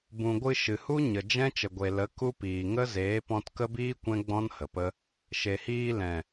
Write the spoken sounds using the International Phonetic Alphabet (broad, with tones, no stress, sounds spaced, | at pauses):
b ũ˨ ɡʷ ɨ˧ ʃ ɨ˨ h u˦ ɲ ə˨ d͡ʒ ɛ̃˦ t͡ʃ ə˨ ɡʷ e˨ l ə˨˦ k u˧ p iː˨ ŋ ə˦ z eː˨˦ p ɔ̃˧ t k ə˦ b iː˦ kʷ ɛ̃˦ ɡ͡b ɔ̃˦ n h ə˨ p ə˦ | ʃ e˨ h iː˧ l ɛ̃˨